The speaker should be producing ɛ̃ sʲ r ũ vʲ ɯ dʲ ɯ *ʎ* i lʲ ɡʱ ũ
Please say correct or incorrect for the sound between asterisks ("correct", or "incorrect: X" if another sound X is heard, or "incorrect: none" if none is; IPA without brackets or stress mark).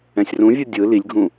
incorrect: l